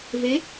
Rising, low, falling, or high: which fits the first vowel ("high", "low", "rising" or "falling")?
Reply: rising